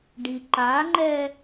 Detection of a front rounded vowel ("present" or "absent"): absent